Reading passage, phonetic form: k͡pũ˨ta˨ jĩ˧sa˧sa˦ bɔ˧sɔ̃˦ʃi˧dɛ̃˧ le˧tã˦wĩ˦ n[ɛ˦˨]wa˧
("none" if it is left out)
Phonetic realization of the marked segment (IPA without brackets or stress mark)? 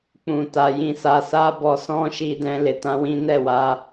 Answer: ɛ˦˨